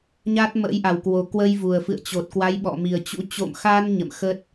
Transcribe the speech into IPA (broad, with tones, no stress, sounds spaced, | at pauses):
ɲ a˦˥ t̚ m ə̰˧˥ j ʔ a˨˩ w k w o˨˩ k w ə˧ j v u˨˩ ə̯ f ɨ̰˧˨ ə̯ t͡ɕ o˨˩ t̚ k w a˨˦ j ɓ ɔ̰˧˨ m i˨˩ ə̯ t͡ɕ ṵ˧˥ t͡ɕ o̰˧˨ m x a˧ n ɲ ə̰˧˨ m x ə˦˥ t̚